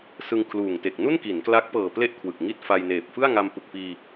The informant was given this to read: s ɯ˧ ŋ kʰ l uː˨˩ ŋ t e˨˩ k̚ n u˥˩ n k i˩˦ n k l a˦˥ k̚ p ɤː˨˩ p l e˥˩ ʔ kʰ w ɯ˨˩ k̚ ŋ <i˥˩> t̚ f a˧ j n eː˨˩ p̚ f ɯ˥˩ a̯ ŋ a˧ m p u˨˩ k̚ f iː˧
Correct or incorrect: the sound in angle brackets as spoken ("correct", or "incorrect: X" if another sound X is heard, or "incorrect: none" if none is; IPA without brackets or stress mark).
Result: correct